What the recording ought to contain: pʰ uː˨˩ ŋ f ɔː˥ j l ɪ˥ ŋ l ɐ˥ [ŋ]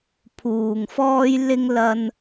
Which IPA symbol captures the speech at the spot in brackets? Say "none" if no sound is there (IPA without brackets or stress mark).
n